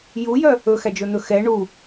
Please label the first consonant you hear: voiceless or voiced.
voiced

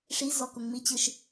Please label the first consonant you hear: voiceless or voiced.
voiceless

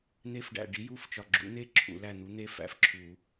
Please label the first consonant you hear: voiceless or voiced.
voiced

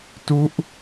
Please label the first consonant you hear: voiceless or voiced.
voiceless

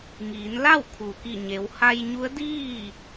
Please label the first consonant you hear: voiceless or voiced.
voiced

